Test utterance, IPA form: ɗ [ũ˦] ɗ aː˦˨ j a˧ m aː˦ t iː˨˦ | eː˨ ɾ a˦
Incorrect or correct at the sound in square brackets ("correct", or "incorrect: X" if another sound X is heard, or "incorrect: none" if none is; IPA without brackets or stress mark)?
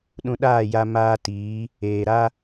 incorrect: ũ˧